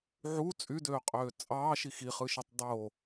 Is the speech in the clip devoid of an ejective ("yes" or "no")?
no